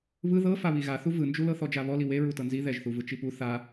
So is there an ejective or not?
no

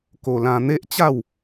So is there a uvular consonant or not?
no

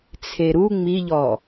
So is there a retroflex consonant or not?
no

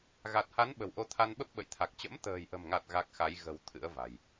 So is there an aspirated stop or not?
yes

